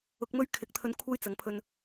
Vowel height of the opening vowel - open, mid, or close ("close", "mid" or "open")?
close